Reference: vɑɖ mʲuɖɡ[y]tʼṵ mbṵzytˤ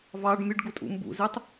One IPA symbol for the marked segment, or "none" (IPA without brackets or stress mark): u